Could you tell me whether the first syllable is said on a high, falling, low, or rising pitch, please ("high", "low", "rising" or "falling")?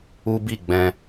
high